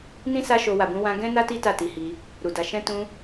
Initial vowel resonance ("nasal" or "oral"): nasal